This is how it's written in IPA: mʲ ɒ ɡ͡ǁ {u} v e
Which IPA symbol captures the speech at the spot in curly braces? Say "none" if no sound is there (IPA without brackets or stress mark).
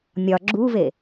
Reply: u